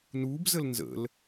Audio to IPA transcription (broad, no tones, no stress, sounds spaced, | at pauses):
n uː b z ə l n z ə̰ l